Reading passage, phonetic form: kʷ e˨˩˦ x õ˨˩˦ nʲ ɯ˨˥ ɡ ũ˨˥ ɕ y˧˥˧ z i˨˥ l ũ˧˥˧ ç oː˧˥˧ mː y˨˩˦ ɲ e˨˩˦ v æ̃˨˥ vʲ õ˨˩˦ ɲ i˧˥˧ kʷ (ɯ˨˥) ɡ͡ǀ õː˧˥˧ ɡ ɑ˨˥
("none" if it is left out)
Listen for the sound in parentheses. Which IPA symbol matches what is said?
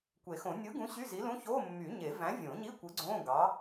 ɯ˨˥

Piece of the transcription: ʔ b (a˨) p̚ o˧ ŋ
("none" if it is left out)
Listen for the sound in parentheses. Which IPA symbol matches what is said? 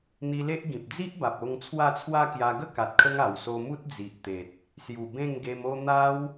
a˨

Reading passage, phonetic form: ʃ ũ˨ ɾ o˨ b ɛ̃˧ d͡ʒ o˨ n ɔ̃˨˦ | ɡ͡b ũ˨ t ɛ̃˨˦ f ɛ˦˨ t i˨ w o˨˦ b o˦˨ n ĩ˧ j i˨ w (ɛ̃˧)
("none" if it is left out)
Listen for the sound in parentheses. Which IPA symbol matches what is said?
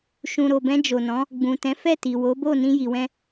ɛ̃˧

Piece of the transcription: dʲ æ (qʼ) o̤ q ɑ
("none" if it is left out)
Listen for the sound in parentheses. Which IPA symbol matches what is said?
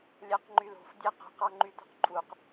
q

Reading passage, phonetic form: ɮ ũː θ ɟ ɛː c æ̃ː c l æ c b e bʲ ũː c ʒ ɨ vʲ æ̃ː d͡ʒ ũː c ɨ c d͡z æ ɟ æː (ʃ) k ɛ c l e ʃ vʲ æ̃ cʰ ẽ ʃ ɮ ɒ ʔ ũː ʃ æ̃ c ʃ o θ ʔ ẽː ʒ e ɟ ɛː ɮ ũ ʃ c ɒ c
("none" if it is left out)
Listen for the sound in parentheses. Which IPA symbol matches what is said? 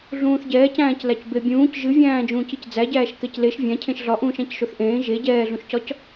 ʃ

